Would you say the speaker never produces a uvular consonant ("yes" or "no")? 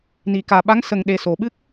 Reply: yes